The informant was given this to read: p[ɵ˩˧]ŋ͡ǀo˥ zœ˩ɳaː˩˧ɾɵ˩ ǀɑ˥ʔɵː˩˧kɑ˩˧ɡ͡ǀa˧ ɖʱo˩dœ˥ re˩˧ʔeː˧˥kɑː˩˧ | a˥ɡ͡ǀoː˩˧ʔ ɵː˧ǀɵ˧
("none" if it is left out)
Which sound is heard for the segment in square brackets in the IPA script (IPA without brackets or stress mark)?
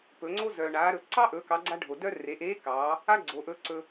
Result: ɵ˩˧